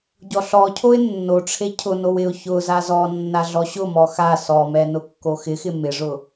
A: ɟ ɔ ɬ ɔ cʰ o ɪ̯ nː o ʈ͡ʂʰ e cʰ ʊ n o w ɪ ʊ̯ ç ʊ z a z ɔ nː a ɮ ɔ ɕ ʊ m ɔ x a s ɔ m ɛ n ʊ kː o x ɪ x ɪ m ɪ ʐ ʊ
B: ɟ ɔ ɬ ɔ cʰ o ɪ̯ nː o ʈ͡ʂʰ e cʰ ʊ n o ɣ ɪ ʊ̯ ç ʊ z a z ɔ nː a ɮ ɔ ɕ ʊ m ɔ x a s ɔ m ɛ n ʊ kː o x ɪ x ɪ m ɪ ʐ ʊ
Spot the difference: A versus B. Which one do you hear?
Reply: A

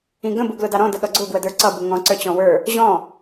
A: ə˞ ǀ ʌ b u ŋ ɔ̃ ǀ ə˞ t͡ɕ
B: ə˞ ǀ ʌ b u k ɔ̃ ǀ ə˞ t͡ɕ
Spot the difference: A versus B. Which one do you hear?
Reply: A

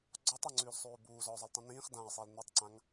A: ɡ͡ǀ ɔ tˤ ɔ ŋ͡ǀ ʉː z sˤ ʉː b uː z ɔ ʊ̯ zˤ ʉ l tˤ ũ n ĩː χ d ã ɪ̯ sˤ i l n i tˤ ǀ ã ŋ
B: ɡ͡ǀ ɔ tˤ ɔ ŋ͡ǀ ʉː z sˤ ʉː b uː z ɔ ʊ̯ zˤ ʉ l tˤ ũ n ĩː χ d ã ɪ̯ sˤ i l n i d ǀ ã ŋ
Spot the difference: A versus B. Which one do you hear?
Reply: A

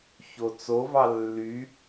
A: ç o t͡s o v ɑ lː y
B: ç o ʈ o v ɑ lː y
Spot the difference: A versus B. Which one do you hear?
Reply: A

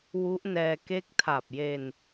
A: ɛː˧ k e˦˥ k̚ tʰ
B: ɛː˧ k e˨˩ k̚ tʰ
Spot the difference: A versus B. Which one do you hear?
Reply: A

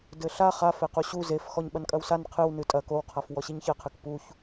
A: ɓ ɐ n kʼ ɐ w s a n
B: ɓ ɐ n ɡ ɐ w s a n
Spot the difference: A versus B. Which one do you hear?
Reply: A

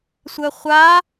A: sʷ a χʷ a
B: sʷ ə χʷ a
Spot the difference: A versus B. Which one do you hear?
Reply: B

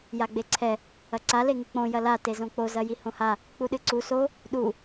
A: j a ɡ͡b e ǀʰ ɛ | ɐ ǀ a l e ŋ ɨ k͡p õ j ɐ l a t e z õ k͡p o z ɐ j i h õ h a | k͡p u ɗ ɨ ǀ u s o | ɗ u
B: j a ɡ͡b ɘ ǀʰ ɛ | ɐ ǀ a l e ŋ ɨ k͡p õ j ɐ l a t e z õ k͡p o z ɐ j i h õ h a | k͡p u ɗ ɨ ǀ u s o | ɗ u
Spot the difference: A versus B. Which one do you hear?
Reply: A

